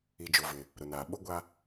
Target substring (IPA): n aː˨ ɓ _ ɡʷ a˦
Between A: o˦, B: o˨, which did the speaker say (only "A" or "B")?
A